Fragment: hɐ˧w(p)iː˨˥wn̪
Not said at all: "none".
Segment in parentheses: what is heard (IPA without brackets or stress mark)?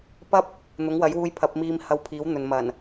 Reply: pʰ